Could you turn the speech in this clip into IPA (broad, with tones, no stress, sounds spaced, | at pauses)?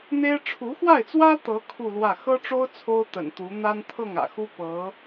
n̪ e˥ ɪ̯ ʈ͡ʂʰ u˧˥ x w a˥˩ ɪ̯ t͡s w ä˥ t̪ ɤ˧˥ kʰ u˥˧ l w ä˥˩ x ɤ˥ ʈ͡ʂ o˥ ʊ̯ t͡sʰ o˥ ʊ̯ t̪ ə̰˨˩ n t̪ u˧˥ n̪ a˥ n t̪ʰ ɤ˥˩ ŋ ä̰˨˩ x u˥ p ɤ˧˥